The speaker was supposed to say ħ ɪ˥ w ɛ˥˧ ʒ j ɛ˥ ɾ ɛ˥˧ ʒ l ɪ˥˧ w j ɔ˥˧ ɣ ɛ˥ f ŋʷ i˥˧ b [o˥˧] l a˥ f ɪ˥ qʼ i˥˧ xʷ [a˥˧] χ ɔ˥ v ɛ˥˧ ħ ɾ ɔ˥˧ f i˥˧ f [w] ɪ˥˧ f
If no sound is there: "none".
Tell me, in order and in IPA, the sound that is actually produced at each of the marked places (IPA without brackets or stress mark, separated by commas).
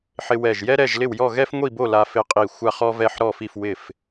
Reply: o˥˧, a˥˧, w